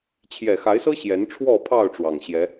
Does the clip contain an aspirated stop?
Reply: yes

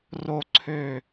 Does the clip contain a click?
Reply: yes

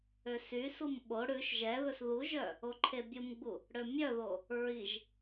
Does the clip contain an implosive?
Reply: yes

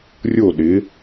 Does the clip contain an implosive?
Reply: yes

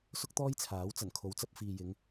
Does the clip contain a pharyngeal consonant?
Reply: no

